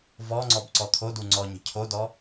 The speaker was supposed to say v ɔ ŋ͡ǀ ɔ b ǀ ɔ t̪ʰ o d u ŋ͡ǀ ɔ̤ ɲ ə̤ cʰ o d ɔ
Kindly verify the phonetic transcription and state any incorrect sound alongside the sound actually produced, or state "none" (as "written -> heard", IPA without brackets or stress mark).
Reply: ɔ̤ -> ɔ